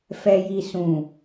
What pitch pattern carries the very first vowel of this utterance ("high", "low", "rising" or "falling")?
low